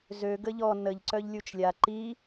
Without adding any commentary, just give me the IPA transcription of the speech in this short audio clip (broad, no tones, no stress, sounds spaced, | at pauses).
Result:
z ø ɡ ə ʎ ɔ n ə ʎ ǀ œ ʎ lʲ u t͡ʃ lʲ a ǃ i